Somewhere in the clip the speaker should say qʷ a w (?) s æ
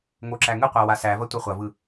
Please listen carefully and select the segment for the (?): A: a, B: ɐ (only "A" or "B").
A